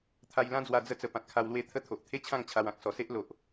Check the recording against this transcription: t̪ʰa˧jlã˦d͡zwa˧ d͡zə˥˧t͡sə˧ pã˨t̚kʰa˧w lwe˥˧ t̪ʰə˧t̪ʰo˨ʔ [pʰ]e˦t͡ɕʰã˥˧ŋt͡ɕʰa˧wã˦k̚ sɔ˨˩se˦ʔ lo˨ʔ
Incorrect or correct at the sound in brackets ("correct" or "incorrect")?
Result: incorrect